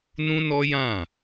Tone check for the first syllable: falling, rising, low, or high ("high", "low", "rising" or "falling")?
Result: high